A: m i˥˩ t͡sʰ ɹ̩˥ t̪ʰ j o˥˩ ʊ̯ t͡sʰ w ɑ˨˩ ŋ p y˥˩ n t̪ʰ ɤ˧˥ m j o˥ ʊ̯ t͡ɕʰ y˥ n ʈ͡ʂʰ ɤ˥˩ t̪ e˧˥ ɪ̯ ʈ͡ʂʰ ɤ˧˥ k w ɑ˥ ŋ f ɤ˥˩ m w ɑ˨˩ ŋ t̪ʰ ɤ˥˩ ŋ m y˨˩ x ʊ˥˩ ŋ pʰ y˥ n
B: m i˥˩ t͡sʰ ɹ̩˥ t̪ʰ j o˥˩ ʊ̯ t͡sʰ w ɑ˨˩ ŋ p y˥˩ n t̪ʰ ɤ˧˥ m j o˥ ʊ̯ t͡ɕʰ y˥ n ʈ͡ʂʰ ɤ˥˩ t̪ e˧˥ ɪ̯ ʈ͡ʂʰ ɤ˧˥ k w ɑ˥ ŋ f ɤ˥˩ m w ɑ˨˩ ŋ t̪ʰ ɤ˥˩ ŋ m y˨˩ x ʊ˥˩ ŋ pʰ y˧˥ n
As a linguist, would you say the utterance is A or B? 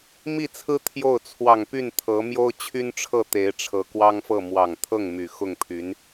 B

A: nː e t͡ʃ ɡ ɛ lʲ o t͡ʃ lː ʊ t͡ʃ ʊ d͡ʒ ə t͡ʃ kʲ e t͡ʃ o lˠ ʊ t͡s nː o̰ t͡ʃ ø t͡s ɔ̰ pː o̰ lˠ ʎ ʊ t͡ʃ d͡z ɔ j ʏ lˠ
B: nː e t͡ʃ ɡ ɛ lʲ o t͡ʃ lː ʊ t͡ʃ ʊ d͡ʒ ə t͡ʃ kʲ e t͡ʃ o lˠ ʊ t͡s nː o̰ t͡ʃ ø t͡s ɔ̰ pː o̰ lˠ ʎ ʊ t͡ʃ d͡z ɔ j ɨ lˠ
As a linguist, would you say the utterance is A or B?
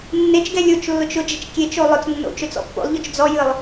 B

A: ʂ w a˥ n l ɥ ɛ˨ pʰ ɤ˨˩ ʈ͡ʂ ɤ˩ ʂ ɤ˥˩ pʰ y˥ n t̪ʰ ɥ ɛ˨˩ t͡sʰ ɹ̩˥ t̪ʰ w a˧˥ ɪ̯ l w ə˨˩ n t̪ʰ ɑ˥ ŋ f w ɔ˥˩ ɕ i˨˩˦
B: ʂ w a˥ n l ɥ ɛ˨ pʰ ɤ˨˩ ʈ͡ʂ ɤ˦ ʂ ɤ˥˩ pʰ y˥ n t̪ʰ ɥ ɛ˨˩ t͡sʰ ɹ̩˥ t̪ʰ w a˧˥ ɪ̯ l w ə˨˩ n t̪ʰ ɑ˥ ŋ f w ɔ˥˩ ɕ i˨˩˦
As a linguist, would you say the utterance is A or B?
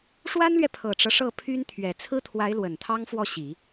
B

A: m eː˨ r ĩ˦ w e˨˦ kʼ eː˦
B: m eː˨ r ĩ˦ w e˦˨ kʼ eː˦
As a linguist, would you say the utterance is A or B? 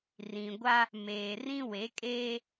A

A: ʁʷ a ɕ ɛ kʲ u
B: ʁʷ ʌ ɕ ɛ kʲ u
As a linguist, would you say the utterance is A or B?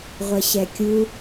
B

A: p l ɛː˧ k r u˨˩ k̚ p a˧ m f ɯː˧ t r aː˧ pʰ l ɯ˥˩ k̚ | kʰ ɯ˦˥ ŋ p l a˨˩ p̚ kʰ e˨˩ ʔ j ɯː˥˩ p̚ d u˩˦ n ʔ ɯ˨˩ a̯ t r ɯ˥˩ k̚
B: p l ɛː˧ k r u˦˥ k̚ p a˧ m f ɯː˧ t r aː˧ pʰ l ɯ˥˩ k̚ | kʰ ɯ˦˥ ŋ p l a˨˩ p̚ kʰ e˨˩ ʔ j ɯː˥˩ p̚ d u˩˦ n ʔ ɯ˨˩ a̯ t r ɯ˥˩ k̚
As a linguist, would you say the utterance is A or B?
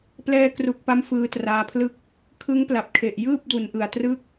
A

